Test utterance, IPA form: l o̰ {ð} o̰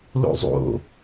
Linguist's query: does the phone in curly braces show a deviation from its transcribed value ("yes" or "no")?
yes